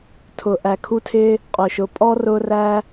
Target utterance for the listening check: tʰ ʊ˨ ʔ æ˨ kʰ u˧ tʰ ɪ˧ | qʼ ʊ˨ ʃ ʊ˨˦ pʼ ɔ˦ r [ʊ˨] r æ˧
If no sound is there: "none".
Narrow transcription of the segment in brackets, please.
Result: ʊ˧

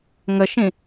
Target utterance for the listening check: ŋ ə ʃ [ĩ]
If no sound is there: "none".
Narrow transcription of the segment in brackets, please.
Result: ĩ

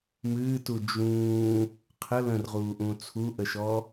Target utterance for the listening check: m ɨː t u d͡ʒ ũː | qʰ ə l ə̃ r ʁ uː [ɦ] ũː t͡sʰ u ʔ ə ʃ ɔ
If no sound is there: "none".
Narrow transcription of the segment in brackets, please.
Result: ʔ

